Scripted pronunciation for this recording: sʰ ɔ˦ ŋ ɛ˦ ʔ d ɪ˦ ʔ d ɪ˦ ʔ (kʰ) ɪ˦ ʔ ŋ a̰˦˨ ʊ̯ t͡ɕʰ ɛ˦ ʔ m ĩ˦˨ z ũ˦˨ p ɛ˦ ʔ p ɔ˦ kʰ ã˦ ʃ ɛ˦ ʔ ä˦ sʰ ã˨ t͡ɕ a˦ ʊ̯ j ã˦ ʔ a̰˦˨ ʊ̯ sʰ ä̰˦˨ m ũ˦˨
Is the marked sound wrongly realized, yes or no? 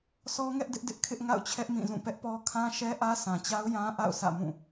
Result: no